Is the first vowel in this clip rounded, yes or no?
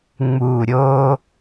yes